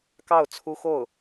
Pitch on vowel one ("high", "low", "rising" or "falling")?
falling